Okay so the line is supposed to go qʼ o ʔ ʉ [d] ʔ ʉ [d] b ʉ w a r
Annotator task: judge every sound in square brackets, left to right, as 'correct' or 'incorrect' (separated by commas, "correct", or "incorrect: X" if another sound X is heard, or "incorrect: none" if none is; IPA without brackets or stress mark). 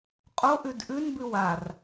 correct, incorrect: n